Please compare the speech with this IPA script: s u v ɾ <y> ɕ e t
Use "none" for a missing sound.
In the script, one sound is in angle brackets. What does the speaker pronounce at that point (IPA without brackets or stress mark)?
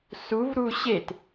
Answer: u